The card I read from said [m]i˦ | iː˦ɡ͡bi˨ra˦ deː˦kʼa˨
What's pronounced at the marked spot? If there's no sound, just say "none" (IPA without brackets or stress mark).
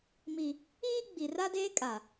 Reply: m